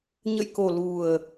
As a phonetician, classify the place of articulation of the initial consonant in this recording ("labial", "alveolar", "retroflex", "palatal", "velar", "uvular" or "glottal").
palatal